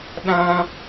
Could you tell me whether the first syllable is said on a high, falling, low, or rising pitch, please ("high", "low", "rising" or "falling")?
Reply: high